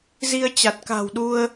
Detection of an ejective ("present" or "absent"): absent